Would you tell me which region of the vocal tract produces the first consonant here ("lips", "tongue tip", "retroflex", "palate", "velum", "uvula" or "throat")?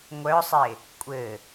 velum